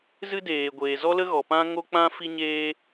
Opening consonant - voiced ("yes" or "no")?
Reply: yes